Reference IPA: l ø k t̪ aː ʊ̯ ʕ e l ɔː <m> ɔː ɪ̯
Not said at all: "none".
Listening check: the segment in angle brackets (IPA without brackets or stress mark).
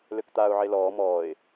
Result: m